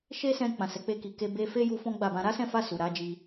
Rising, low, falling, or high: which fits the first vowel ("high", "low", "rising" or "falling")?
high